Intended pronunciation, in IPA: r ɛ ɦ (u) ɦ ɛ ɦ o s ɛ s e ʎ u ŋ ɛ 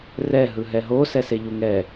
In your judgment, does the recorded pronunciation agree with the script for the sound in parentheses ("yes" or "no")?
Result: no